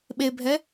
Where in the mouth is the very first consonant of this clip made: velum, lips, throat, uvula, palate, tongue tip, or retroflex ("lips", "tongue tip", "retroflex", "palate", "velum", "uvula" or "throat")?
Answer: lips